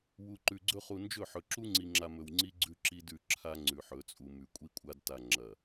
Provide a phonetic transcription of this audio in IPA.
w u˨ ǃ ʉ˨ ɡ͡ǀ ɵ˦ χ u˨ n d͡ʒ ɵ˦˨ ħ ɵ˨ ǁ u˦ ŋ͡ǀ i˨ ŋ͡ǁ a˨ m ɵ˨ w ŋ͡ǀ i˦ ɡ͡ǀ ʉ˦ ǁ i˦ d ʉ˦˨ ǁʰ a˦ ŋ͡ǀ ʉ˨ ħ ɵ˨˦ t͡sʼ u˨ m ʉ˨ kʷʼ i˦ kʷʼ a˦ d t a˨ ŋ͡ǁ ɐ˨

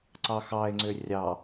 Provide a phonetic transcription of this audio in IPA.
ǀ ɑ x ɑ e̯ ŋ͡ǀ ø rʲ ɑ

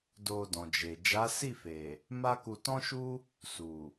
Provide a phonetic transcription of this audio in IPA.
d o˧ d ɔ̃˨ d͡ʒ e˨ d͡ʒ a˨˦ s i˦˨ f e˨ | m a˦ k u˧ t ɔ̃˦ ʃ u˦ | s u˨

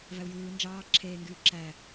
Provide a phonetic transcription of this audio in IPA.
v æ u̯ j ɯː n d͡ʒ ɑː ǁʰ eː ŋ ɡ yː ǁ æ

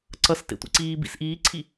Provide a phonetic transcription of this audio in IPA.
ǀ ʌ s t ḛ tʷ ḭ ǀ iː b ḭ s ʔ iː ǀʰ i

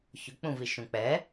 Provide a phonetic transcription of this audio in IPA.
ç ʊ k͡p ũ v i ʃ ũ k͡p ɛ

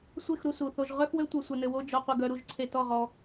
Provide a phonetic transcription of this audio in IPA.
sʷ e˦˨ x ɾ u˧ s u˨ θ o˧ ʒ ʁ œ˦ x w ø˦ tʷ œ˧ sʷ ɘ˧ n ɘ˧ w o˦ d͡ʒ ɔ˧ qʷ ɘ˧ ɡ œ˧ ɾ u˦˨ ʒ ǀʰ e˧ t ɔ˦˨ ʁ ɔ˧

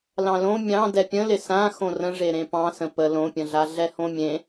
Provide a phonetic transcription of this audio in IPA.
l ɑ̃ l õ mʲ ɑ̃ d ɛ pʲ ə̃ l ɪ s ã x õ r ə̃ ʐ e ɾ ẽ p ɑ̃ s ə̃ p ə l õ pʲ ə̃ ɮ a ɮ ɛ h õ mʲ ẽ

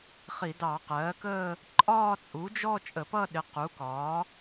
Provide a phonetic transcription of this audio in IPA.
χ i˧˩˧ d ɑ˧˩˧ q ɜː˩˥ k əː˥˧ | ǃʼ ɒː˥˧ t͡sʼ u˩˥ d͡ʒ ɔ˥˧ t͡ʃʼ ə˧˩˧ p ʌ˥˧ ɗ ɪ˩˥ q u˩˥ k ɒː˩˥

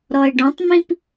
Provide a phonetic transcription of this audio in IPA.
ɾ ɔ e̯ ɖ ɔ̃ tˤ m ĩ p

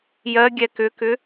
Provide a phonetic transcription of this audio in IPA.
j ɜ ɡʲ ɛ k ʏ k ʏ

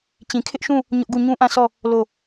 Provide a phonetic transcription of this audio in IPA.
t͡ɕ ĩ˨ kʰ ɪ˦ ʔ ʃ ũ˦˨ | ɲ ʊ˦ ʔ ɡ u˦˨ ɲ ũ˦ ʔ ã˦˨ sʰ ɔ˦˨ | l o˦˨

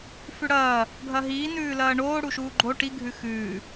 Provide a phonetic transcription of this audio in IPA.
f ʉ ɽ ɐː | ɡʱ ɐ ɦ iː n ʉː l ɐː ɳ oː ɽ u ʃ uː ɡ͡ǃ o ʈ i ɡʱ ʉ x ʉː

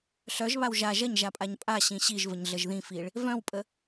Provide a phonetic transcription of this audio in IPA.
ɬ œ ʒ β a w ʒ a ʒ ɐ ɲ ʒ a pʼ a ɲ pʼ a ɕ ĩ ɕ i ʒ v ə ɲ ɮ ə ʒ ð ĩ f i ɭ | v œ̃ w pʼ ə

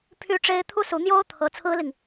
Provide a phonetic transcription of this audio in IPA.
pʰ y˥ ʈ͡ʂ e˥ ɪ̯ t̪ʰ u˥ s u˧˥ n̪ j o˥ ʊ̯ t̪ʰ ɤ˧˥ t͡sʰ ɹ̩˥ l i˨ ŋ

